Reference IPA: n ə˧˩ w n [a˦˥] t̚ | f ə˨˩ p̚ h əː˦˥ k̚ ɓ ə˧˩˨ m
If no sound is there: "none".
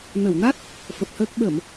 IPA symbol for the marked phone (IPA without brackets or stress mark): a˦˥